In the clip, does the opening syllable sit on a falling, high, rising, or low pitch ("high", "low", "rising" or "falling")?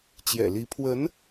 low